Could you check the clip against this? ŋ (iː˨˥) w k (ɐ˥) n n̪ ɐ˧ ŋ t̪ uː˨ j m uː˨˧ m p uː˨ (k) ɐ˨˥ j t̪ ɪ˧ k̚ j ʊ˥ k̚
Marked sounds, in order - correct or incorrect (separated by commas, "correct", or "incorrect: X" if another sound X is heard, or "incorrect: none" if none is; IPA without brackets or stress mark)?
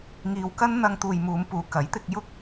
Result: incorrect: iː˧, correct, correct